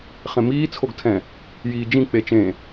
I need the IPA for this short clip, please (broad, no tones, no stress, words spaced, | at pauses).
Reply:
χẽmiː t͡sʰoɡtʰɛ̃ | jiːd͡ʒĩ k͡pet͡ʃẽ